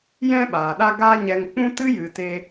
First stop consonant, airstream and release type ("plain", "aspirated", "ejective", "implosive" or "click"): implosive